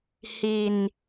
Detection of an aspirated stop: absent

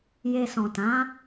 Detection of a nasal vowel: present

